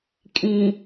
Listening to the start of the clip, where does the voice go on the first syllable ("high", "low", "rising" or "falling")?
low